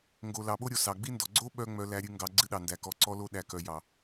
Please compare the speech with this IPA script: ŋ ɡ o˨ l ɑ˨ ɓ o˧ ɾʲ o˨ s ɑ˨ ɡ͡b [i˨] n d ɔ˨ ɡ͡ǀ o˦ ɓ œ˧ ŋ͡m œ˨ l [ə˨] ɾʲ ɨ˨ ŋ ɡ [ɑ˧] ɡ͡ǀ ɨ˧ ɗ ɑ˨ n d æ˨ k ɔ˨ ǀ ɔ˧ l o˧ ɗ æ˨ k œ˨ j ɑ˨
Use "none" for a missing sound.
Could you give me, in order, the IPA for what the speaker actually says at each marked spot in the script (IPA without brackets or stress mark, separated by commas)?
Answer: i˧, æ˨, ɑ˨